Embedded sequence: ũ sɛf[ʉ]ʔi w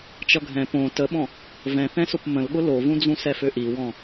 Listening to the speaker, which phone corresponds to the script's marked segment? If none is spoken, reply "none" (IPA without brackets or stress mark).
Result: ø